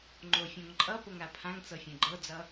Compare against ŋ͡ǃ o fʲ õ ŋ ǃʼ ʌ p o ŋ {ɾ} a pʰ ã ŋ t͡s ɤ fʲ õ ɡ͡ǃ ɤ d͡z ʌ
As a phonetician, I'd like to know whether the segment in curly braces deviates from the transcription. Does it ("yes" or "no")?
no